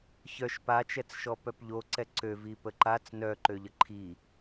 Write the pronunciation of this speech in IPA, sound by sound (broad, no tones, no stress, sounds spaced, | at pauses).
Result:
ç œ ʃ p a t͡ʃ ɛ t͡s ʃ ɔ p œ p ʎ o ǀ ɛ ǀ ø v i p ə ǃ a t͡s n œ ǃ ø ʎ ə ǃʰ i